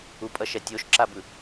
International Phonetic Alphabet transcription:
upʼʌʃɛ tʲoʃǁabɯ

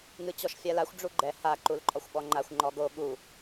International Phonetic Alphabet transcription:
ŋɨt͡ɕɔʃfʲalaxʷ ɖ͡ʐuɡ͡ǃɛ ha ǃulǃʼɔxʷɓɔŋ͡ǃaxʷ ŋ͡ǃɔɡo ɠu

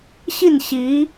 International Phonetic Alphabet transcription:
ɕi˥˩n ɕi˧˥

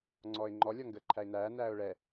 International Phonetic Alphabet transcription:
ŋ͡ǀɔːɪ̯ŋ͡ǃɔ lʲɔŋɡəːǃʰæɪ̯næː næːʊ̯ɭɛ

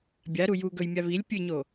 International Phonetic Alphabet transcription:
bʲaɾu ju ɡɵjmʲa βilʲ pʲɨɲo

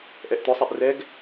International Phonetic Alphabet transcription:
ʔɛʔt̪ʊsˤɛʔ rɛɡ

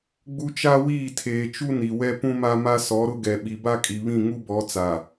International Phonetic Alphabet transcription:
ɡ͡bu˦ t͡ʃa˦wiː˦˨tʰeː˨t͡ʃu˦ ni˨wɛ˦pũ˦ma˦ ma˦sɔ˨˦ɾʊ˦ɡɛ˨ ɓi˨ba˦kʼi˨βĩ˦˨ ŋu˦bɔ˨˦ t͡sa˨

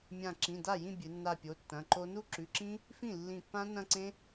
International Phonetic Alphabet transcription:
mʲã˧˩ǁĩ˩˧˩ da˥˩jĩ˥˧ bʲɨ˩˧nːa˧˩ pʲo˩˧˩tːɐ̃˩˧˩ǃo˦˥ nu˦˥ǁʉ˩˧˩ǁĩ˦˥ | fĩ˥˩lːĩ˧˩pːã˦˥ nɐ̃˥˧ǀẽ˦˥

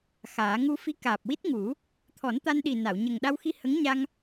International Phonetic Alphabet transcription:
xaː˨˩˦ ŋu˧fi˧˥ kaː˨˩p̚wi˦˥t̚ŋu˨˩˦ | t̪ʰɔ˨˩˦nt̪a˧nɗi˨˩ na˨˩˨wɲə˨˩ŋ ɗa˧wxi˧ hə˧˥ŋɲa˧ŋ

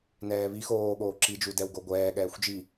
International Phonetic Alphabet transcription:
nɛːβi xoː ɠoːǁid͡ʒudɛw ɡoɡʷɛː ɠɛːxʷd͡ʒi

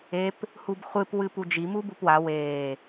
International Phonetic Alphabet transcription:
ep | hubχʷɨp wɨpud͡ʒi mubupwa weː

